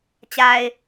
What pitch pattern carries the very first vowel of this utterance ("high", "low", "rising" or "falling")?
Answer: low